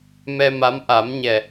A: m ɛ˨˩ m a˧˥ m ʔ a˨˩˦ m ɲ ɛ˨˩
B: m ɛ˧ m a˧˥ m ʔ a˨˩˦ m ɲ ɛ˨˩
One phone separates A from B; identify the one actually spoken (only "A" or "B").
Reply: B